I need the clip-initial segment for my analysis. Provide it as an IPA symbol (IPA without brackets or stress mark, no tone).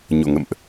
ɲ